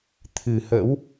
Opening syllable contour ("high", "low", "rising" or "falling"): low